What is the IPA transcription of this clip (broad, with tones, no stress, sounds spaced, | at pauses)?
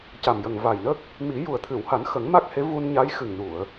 c a˨˩ m j ə˨˩ ŋ v a˨˩ j n ə˦˥ k̚ | m i˨˩˦ j u˨˩ ə̯ t̪ʰ ɨ˨˩˨ w h a˨˩˦ n x ə˨˩˦ ŋ m a˦˥ k̚ h e˧˥ v u˧ n ɲ a˧˥ j x ɨ˨˩ ŋ n u˨˩˨ ə̯